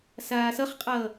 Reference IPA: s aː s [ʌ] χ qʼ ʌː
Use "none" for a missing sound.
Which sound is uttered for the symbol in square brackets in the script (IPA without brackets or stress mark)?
ʌ